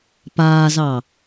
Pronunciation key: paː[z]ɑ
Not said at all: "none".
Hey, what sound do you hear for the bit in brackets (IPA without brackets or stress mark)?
z